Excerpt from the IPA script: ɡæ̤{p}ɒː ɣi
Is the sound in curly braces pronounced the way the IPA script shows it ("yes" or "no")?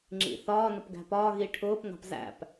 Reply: yes